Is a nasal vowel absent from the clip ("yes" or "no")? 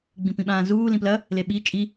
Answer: no